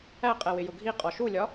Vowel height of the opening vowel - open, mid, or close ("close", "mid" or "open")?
open